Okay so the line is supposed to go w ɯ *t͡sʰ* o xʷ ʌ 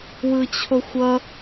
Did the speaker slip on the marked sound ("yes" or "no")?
yes